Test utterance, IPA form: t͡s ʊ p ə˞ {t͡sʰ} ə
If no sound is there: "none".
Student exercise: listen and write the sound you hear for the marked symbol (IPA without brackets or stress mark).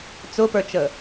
t͡ʃ